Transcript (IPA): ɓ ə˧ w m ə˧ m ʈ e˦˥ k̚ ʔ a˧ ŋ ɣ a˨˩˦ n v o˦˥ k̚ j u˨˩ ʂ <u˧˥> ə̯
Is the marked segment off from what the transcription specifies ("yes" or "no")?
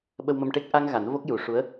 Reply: no